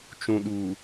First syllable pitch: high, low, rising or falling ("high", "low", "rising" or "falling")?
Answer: low